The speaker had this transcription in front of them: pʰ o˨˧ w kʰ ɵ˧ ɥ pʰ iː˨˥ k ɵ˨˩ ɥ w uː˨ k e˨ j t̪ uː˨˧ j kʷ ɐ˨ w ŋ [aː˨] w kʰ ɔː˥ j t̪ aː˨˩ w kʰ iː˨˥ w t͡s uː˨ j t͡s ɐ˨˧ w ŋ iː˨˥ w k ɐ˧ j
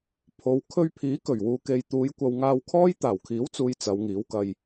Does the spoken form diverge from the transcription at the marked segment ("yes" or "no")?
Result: yes